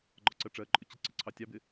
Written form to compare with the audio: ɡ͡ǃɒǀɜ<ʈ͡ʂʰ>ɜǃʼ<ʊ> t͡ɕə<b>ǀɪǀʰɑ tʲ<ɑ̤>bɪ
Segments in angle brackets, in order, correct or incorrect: incorrect: ʈ͡ʂ, correct, incorrect: none, incorrect: ɑ

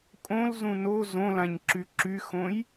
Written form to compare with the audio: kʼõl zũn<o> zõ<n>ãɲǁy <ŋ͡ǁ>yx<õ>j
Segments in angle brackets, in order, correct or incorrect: correct, incorrect: l, incorrect: ǁ, correct

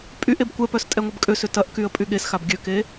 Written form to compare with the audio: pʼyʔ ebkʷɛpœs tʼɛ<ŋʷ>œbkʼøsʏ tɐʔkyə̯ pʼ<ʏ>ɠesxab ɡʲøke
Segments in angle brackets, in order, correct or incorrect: correct, incorrect: y

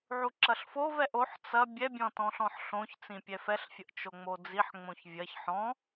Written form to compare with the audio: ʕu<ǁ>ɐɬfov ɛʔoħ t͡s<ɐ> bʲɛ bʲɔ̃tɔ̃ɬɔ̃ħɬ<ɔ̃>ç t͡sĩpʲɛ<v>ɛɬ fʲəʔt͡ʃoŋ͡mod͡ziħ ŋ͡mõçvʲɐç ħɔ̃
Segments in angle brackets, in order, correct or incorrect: correct, correct, incorrect: õ, incorrect: f

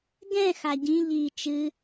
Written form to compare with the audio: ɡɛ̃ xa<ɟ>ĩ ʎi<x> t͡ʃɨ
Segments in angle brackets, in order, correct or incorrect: correct, incorrect: none

